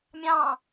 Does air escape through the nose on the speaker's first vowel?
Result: yes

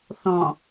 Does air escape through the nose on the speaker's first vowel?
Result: yes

